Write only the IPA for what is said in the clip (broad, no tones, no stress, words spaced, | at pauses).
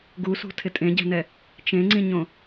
ɡusṳ tʰɪtʼẽɟɛ̤nɛ | t͡ʃẽŋ͡ǀĩɲõ